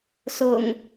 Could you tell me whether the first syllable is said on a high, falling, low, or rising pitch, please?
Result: low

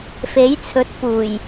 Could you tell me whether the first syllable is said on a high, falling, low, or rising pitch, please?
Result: rising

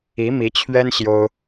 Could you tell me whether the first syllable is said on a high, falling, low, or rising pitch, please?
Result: rising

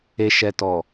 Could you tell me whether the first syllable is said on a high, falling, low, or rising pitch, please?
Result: low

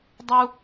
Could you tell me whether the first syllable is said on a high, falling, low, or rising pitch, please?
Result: high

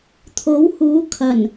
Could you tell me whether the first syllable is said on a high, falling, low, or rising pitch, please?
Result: rising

